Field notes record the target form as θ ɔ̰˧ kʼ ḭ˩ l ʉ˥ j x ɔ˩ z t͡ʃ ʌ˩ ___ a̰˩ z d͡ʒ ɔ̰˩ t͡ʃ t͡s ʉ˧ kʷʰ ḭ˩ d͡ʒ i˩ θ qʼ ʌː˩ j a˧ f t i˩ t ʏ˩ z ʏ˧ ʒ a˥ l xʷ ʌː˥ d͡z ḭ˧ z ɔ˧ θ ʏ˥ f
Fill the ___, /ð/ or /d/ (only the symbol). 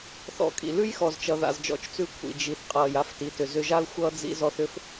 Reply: ð